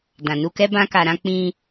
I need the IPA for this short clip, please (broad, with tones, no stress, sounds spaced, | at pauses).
d ã˨ n u˧ k ɛ˦ b ã˦ k a˧ ɾ ã˦ k͡p ĩ˧